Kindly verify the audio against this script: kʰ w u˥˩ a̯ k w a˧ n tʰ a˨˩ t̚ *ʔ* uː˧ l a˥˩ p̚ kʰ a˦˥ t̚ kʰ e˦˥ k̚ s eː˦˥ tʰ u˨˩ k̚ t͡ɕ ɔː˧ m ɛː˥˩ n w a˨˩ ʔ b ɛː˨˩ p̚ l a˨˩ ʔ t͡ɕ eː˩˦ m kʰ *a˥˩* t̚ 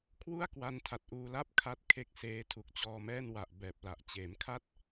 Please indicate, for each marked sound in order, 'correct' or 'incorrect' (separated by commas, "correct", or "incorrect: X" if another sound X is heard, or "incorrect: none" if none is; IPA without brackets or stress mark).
correct, correct